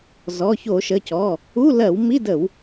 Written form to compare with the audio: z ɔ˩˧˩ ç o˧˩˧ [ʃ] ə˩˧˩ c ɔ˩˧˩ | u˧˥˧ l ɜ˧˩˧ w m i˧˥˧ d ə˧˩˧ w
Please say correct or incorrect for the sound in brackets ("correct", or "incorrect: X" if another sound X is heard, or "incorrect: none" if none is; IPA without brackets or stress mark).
correct